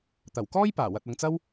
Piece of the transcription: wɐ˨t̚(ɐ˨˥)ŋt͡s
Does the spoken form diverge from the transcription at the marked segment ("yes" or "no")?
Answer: yes